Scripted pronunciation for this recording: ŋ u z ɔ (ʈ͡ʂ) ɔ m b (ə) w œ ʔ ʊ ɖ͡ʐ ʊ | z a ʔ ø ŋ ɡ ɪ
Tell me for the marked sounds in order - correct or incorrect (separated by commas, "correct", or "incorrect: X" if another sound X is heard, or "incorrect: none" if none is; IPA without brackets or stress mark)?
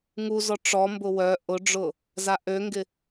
correct, incorrect: ʊ